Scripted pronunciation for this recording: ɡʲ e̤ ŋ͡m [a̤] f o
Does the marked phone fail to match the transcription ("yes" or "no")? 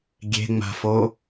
no